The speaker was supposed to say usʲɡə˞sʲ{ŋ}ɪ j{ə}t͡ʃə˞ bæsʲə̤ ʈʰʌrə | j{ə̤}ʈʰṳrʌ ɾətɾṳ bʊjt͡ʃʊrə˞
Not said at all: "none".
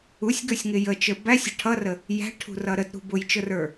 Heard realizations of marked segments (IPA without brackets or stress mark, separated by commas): ŋ, ə, æ̤